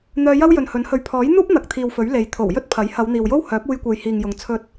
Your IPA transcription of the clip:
n̪œː˧jɐ˥w jɵ˨nhɵ˨˥nhɵ˨˧ɥ pʰɔː˨˥jn̪uː˥p̚ n̪ɐ˨k̚t̪ʰiː˨wfɵ˨˥ɥ le˨j t̪ʰo˨˩wjɵ˥t̚ pʰɐ˨˥j hɐ˨˧wn̪iː˨wjo˥w hœː˨˥p̚uː˧jkʷe˨j hiː˨ŋjʊ˨ŋ t͡sʰɵ˥t̚

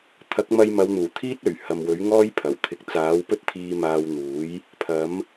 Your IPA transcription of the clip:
t̪ʰɐ˨˥k̚mɐ˧jmɐ˨˧wn̪uː˨˩ t̪ʰiː˥t̚ɵ˨˩ɥ hɐ˨mwɵ˨˥ɥ ŋɔː˥jpʰɐ˨˩wt̪ʰɪ˨˥k̚ t͡saː˨˥wpɵ˥t̚t̪ʰiː˧ maː˧wn̪uː˨˥j | pʰɐ˨˥m

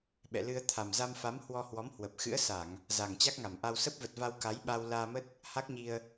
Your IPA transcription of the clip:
ɓɛ̰˧˨lɨ˧ə̯ t̪ʰa˨˩mza˧mfa˨˦m hwɔ˧hwɔ˨˦mhwə˨˩p̚ xɨ̰˧˥ə̯sa˧˩˨ŋ | za˨˩ŋ t͡ɕa˦˥k̚ŋa˧˩mʔa˧w sə˦˥p̚və˨˩t̚va˧w ka˨˦jɓa˧wlaː˧mə˦˥t̚ | ha˦˥k̚ɲi˧ə̯

